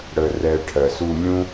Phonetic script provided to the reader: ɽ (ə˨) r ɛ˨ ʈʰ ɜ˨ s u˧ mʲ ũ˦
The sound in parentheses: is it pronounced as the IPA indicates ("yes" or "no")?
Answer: yes